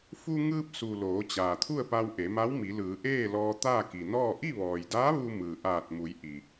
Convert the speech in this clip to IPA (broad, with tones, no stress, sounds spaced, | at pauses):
f u˧ ŋ ɯː˧ p̚ s u˩ l oː˩˧ t͡ɕ aː˩ t̪ʰ u˥˨ ə̯ p a˧ w ʔ e˩˧ m a˧˥ w m i˩˧ l ɯː˩˧ ʔ eː˥˨ l ɔː˧ t̪ aː˥˨ k i˩ n ɔː˥˨ ʔ i˥˨ ʋ ɔː˩ j d aː˧˥ ʋ u˧ m ɯː˩ ʔ aː˧˩ t̚ m u˩˧ j ʔ i˩